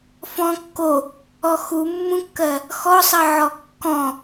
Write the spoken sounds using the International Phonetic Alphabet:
f ɔ̃ kː o | ɔ x u mː ũ kː ɜ | x ɔ sˤ ɜ ʕ ɔ kː ɔ̃

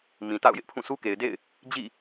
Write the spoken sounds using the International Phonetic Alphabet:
m ĩ˨ t a̰˦˨ ʊ̯ j ɪ˦ ʔ pʰ ũ˦˨ sʰ u˦ k e˨ ɪ̯ d ḛ˦˨ ɪ̯ | d͡ʑ ḭ˦˨

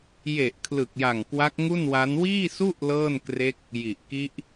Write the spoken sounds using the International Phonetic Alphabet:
j e˨˩ ʔ kʰ l ɯ˨˩ k̚ j a˨˩ ŋ k w a˦˥ k̚ ŋ u˥˩ n w a˦˥ n w iː˥˩ s u˥˩ ʔ l ɤː˥˩ n k r e˦˥ k̚ | j i˨˩ ʔ k i˦˥ ʔ

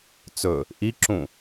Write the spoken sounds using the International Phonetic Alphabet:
t͡s ɵ | ʔ i ǁ ũ

